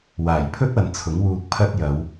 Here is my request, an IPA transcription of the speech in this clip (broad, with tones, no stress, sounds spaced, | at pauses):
w aː˨˩ j pʰ ɵ˥ t̚ ɐ˨ n t͡sʰ ʊ˨˥ ŋ w uː˧ k̚ pʰ ɐ˥ t̚ j ɐ˨˧ w